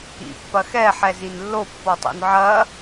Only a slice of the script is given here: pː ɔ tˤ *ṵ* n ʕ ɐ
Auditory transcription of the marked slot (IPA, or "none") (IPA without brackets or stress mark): o̰